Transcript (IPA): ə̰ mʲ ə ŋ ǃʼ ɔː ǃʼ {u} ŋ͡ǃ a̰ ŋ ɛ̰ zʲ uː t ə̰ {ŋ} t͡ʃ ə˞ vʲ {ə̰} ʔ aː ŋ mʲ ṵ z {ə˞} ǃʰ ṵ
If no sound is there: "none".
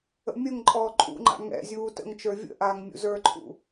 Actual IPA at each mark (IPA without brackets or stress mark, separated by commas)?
ṵ, ŋ, ə̰, ə˞